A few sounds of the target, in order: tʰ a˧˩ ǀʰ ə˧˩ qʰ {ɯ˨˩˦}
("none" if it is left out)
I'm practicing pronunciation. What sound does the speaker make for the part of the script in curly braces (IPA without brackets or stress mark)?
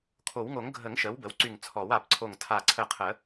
ə˨˩˦